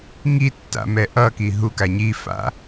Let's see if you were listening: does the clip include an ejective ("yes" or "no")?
no